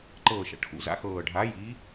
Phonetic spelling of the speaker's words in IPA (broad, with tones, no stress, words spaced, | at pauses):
ǃɤː˨˩ʃa̰˨˩ʈxṵ˨˩za̰˨˦ xɤː˨˩ɖʱaː˨˦jiː˨˦